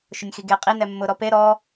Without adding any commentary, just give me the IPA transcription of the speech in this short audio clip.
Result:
ʃ ʊ nʲ x i ɡ e qʼ i n ɛ mː ʊ ɾ ɔ p e ɾ ɔ

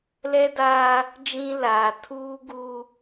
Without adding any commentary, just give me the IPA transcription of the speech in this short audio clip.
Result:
l ɛ˦ d aː˦ | d͡ʒ ĩ˦ l aː˨ tʰ uː˦ ɡ u˦

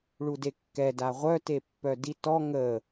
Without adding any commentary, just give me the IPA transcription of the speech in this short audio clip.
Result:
ɭ u d e kː ɛ d a ʁʷ œ t e pː œ d i t ɔ ŋ ə

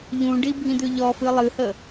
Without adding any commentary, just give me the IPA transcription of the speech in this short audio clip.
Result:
ʎ ũ ɖ i bʱ ĩ d̪ ʉ ʎ ɔ f ɨ lˠ ɨ h ə

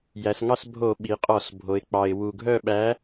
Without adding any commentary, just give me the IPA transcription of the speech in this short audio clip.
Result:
j æ˩˧ s ŋ ɑ˦˨ s bʱ o˧˩˧ ɓ i˩˧ qʼ ɔ˧˩˧ s bʱ o˩˧ ɪ̯ k͡p ɑ˩ ɪ̯ w u˩ ɡʱ œ˦˨ ɓ æ˨˥

